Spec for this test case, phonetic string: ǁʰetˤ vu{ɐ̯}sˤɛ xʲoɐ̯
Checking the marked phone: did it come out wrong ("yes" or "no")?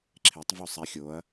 yes